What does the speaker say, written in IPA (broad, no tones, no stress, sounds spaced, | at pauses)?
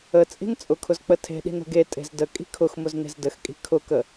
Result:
ə t͡sʼ i̤ n t͡sʼ ʊ kʰ ʊ z k͡p ə tʰ e̤ ɗ i̤ n ə̤ ɡ e tʼ e̤ z d ə kʼ i̤ kʰ ʊ x m ʊ z n e̤ z d ə x kʼ i̤ kʰ ʊ k ə